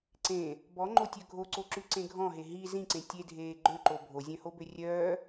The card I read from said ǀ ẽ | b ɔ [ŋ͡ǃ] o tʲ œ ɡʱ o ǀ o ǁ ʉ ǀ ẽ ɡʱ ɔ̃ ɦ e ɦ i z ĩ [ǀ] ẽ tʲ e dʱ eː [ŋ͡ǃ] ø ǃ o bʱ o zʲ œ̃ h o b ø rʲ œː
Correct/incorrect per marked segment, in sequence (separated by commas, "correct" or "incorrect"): correct, correct, incorrect